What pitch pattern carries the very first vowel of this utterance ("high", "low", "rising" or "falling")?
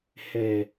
low